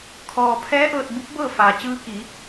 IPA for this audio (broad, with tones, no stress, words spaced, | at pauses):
kʰɔː˩ pʰɛː˧˥ ʔɤː˧t̚bu˧˥p̚bɤː˥˨faː˩ t͡ɕɯː˧ki˩˧